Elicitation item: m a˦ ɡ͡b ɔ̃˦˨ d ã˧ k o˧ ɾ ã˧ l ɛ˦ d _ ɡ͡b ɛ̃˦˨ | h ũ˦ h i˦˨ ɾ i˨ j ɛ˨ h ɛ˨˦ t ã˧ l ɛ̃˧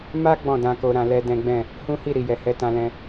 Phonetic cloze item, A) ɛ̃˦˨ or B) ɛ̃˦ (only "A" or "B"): B